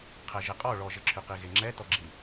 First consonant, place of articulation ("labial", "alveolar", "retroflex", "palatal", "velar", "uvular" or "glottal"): uvular